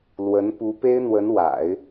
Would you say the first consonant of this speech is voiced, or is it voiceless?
voiced